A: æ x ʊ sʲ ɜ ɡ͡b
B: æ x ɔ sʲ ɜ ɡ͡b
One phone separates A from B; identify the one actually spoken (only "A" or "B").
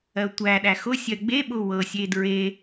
A